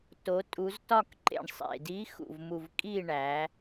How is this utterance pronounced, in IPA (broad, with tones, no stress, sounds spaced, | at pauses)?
t o˩˧ tʼ u˩˧ z t ɒ˦˨ k ǃ ḛ˨˩ ɳ sˤ ḛ˨˩ d i˧˥ x ṵ˨˩ v m u˨˩ v kʼ i˦˨ ɳ æ˩˧